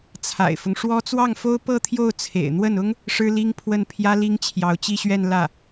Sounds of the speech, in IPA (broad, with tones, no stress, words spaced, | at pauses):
t͡sʰa̰˨˩ɪ̯fʊ˦ŋʂwɔ˥ t͡swɑ˥˩ŋfo˥ʊ̯ pɤ˥˧t̪ʰjo˥˩ʊ̯ t͡sʰḛ˨˩ɪ̯n̪wə˥˩nʊ˥ŋ | ʂɻ̩˥li˥ŋpʰwə˥˩n pʰjä˥ li˥ŋt͡ɕʰjɑ˧˥ʊ̯t͡ɕi˥˧ɕɥɛ˥˧n lä˥˩